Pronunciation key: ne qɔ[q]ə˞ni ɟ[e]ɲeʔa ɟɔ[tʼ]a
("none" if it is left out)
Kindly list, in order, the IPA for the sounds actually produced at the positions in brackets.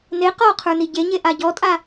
qʰ, e, tʼ

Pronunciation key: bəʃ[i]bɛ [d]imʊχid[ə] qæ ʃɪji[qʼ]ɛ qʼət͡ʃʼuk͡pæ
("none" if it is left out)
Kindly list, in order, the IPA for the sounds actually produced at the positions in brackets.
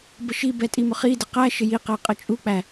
i, tʼ, ə, q

